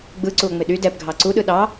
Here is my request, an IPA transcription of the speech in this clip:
ɡ͡b ɯ ǀ u o̯ ŋ͡m ɪ ɗ y d ɛ p ɡʱ ɑ ǀ u ɗ ɯ ɗ ɑ

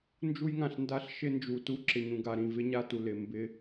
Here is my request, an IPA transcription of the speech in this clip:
n d͡ʒ u˦ j ŋ ã˨ ɬ n d a˦ ɬ ʃ ɪ˦ n d͡ʒ u˨ t u˦ ǁ ɪ˨ ɲ ũ˨ ɡ a˨ ɾ ĩ˨ v ɪ˦ ɲ a˦ t u˨ l ɪ˨ m b ɪ˦

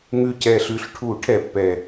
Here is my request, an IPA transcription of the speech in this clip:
ŋ ʉ˨˩ c ɛ˨˩ ɬ ʉ˨˩ ɬ ʈʰ u˨˩˦ ʈʰ ɛ˨˩˦ pː ɛ˨˩

